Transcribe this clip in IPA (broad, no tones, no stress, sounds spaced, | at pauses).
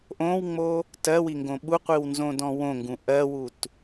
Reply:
ʔ õ w ŋ͡m o | t ɜ w i ŋ ɡ õ ɓ u qʷ i w n z õ d ɔ̃ w õ ŋ ɡ ũ ʔ ɜ w u t